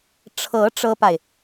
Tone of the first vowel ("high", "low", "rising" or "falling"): rising